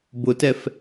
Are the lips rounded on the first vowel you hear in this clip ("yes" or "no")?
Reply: yes